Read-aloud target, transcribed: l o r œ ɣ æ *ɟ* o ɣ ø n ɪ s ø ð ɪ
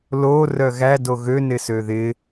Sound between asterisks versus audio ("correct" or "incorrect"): incorrect